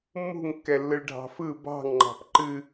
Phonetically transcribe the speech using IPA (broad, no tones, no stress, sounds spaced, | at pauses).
mː ṳ ŋ kː ɛ lː ɯ ɭ ɖʱ ɑ̤ f ɯ b ɑ̤ ŋ ŋ͡ǃ ɑ̤ p ǃ ɨ